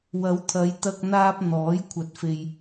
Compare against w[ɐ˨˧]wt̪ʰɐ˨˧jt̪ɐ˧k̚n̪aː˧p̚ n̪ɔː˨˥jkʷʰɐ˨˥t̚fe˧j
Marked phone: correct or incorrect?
correct